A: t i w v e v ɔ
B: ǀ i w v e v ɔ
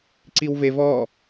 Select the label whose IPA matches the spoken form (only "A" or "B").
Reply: B